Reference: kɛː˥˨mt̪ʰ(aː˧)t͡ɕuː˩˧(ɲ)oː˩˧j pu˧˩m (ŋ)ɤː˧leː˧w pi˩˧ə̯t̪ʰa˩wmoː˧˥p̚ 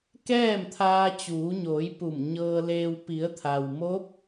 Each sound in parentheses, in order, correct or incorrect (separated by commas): correct, correct, incorrect